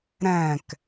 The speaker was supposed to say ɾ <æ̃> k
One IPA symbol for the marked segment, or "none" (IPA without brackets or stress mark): æ̃